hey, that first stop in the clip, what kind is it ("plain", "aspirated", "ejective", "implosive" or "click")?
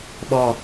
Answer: implosive